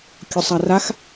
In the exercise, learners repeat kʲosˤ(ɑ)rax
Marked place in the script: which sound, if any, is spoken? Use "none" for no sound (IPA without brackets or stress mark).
a